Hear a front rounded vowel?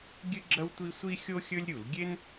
no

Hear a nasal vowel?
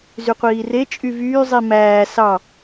no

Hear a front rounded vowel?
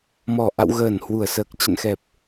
no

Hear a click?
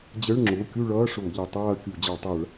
yes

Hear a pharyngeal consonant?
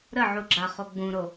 yes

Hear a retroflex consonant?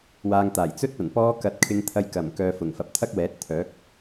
no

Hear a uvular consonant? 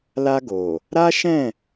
no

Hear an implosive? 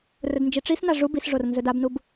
no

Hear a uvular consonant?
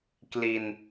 no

